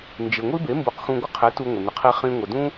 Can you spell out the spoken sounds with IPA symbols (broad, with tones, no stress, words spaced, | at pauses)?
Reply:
nd͡ʒɪ˩ ŋʷi˥be˩˥ mbu˩˥qxũ˧ ɡʷə˥qʰe˩˥ tu˧ŋʷɪ˩ nɪ˩qʰi˧ χĩ˧ŋʷə˩dũ˥